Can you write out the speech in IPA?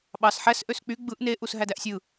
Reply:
ɓɑsħæs ʔøsk͡py ɡ͡bɯʔ ne ʔusɦædæʔsʲɯ

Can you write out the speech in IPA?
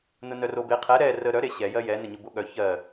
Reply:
nʊnœrobe qʰɛ ɾɛ rə ɾœ ɾeɕɛ jɜjɛ nəɲʊboɠœ çɜ

